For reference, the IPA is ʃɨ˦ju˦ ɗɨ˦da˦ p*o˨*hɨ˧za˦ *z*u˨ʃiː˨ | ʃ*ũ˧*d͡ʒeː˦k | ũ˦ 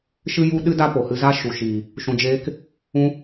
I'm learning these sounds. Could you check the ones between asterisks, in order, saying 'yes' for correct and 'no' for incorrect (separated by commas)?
yes, no, yes